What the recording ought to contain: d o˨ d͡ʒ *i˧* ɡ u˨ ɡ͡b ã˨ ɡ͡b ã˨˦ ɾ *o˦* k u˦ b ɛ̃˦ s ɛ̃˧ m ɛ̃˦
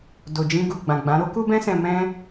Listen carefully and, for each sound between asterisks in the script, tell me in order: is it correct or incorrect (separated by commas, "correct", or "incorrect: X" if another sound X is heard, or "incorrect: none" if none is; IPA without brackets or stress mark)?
incorrect: ĩ˧, correct